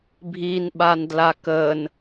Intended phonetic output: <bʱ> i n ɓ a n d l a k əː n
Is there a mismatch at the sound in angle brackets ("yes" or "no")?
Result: no